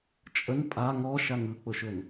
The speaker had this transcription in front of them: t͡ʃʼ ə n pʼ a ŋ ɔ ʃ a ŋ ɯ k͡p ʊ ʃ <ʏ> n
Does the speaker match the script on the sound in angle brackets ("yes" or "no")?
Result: yes